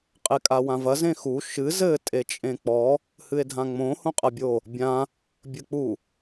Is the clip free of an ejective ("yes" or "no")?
no